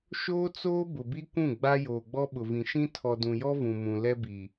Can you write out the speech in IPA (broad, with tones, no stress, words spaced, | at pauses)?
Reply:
ʃoː˦t͡soː˦ bʊ˨bi˦kʷũ˦˨ ɡ͡ba˦ joː˨ɡ͡bɔ˦ɓʊ˨vĩ˨ ʃĩ˦ tʰɔ˨dũ˨jɔ˦ vũ˨mũ˨ lɛ˦bi˨